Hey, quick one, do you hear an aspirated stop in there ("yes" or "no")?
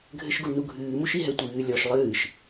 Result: no